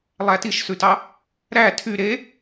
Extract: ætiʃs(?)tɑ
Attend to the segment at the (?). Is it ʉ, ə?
ʉ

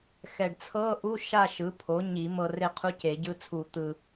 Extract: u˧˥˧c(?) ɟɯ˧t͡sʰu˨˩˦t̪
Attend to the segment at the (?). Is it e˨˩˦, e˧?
e˨˩˦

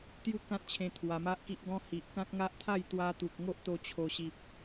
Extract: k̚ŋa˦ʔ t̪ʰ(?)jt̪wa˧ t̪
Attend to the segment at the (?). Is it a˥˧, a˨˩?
a˥˧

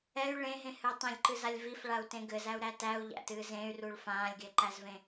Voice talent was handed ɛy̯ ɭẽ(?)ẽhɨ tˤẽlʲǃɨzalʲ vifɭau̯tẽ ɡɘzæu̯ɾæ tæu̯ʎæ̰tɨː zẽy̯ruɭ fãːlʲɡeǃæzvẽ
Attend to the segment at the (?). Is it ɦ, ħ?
ɦ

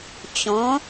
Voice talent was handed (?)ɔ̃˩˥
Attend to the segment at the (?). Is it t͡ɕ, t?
t͡ɕ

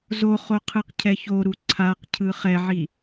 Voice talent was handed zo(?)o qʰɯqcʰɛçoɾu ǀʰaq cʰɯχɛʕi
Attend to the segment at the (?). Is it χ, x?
χ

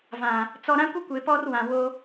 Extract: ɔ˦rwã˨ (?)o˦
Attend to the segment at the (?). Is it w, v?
w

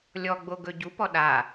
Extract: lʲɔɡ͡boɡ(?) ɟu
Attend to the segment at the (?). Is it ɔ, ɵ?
ɵ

